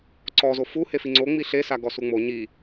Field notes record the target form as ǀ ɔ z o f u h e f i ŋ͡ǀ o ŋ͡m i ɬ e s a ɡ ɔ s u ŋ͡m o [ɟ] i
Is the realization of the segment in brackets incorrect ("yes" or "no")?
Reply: yes